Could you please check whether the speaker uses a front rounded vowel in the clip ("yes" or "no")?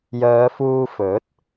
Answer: yes